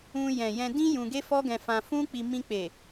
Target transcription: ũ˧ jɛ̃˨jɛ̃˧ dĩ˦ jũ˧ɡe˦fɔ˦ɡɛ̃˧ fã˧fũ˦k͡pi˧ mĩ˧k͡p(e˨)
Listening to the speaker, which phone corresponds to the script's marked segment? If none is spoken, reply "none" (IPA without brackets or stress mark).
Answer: e˨